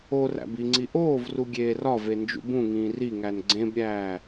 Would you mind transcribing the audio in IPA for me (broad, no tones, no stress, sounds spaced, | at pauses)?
o r æ̰ b i ŋ͡ǀ i ʔ oː v r u ɡʲ eː r ɒ v e n d͡ʒ ṵ b ũ ŋ ĩː r i ŋ æ n ɡ͡ǀ ẽ b ɾʲ æː